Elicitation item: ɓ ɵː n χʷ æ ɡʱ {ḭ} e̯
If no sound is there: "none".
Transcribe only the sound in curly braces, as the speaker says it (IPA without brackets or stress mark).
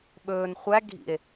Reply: ḭ